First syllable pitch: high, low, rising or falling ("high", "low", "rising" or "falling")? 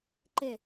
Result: falling